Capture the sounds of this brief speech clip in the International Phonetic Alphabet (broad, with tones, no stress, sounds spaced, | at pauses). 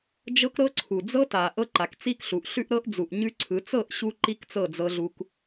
d͡ʒ ɤ˦ k ɾ ɤ˦ ǀʰ u˨ d͡z ɤ˦ t a˨ ʔ ɤ˦ ǃ a˨ k t͡s i˦ k ɬ u˨ ʔ ɬ ʉ˦ ʔ ɾ ɤ˦ ʔ d͡z u˨ ʔ ɲ ʉ˦ ǀʰ ɯ˨˦ t͡s ɤ˦˨ ʔ ɕ u˦ ǃ i˦ k t͡s ɤ˦˨ d͡z ɤ˦ ɮ u˦ k